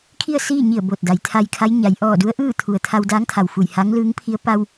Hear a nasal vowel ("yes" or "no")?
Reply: no